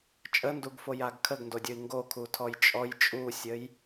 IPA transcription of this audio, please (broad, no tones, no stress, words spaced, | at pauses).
t͡ʃʼənduɡfojaɡ kʰəɡndodʲoi̯ ŋɡokʰutʰɔj t͡ʃʼɔj t͡ʃʼusʲəj